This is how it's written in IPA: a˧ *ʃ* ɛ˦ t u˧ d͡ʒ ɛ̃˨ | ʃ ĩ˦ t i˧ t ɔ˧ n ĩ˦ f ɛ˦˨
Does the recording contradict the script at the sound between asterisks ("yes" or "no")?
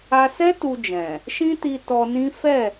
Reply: yes